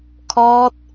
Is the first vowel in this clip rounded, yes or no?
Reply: yes